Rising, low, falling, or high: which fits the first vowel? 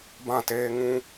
falling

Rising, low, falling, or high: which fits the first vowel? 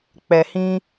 low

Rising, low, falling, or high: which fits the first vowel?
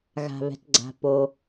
low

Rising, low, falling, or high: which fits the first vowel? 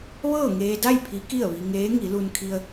falling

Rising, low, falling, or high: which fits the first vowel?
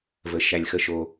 low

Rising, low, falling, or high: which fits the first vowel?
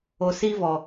low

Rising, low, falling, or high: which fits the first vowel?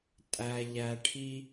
low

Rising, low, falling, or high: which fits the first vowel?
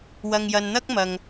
low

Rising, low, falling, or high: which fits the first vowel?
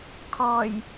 low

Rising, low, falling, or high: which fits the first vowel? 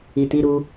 low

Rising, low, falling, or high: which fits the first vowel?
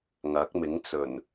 rising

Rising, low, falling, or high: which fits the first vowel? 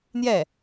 falling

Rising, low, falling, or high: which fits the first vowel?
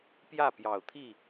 falling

